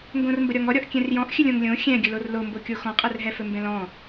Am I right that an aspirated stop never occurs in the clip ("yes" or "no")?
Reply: yes